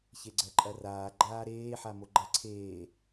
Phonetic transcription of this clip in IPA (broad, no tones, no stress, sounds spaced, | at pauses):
ç e ɡ͡ǀ ɜ ǃʼ ɐ r aː ɡ͡ǃ aː ɾ eː ħ a m o ɡ͡ǃ ɐ ǀʰ eː